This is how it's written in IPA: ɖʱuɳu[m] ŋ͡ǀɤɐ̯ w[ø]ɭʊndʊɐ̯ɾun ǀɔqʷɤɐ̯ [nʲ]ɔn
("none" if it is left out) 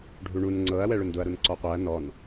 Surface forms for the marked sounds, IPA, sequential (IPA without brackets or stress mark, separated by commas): n, ɛ, n